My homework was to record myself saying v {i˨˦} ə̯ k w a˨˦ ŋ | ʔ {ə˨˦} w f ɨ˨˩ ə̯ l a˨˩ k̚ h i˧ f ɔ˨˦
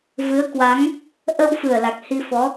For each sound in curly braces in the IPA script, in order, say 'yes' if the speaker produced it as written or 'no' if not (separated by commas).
no, no